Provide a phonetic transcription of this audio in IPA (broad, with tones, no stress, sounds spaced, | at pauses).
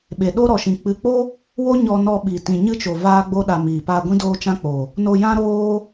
ɓ e˨ ɗ o˦ ɾ ɔ˨ ʃ ĩ˨ k͡p ɨ˨ k͡p o˦ | w o˦ ɲ ɔ˧ n ɔ˧ ɓ i˨ t ĩ˨ ɲ ɨ˦ t͡ʃ o˨ v aː˦ ɡ͡b o˦ ɗ a˧ m iː˨ p aː˧ ɡʷ ĩ˦ d oː˦ t͡ʃ ã˦ k͡p o˨ | n o˧ j ã˦ ɾ oː˦